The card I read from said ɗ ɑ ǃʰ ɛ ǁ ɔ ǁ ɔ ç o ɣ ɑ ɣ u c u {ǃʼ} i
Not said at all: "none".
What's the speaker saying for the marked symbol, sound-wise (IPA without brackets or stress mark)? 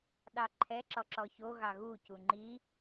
ŋ͡ǃ